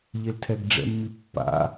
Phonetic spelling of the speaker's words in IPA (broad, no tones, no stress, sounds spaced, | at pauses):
ʎ e l tʰ ɛ ɡ ɖ͡ʐ ɛ̰ mː i pː a̰